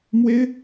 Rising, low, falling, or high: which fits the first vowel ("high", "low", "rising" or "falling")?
high